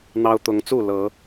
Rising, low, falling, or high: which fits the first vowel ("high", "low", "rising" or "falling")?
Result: high